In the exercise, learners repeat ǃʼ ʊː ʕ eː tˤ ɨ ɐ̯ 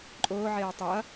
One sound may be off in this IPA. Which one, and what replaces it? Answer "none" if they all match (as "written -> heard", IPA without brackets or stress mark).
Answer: none